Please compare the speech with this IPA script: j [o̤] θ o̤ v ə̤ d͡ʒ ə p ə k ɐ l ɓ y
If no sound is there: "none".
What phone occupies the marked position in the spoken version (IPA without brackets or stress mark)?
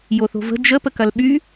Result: o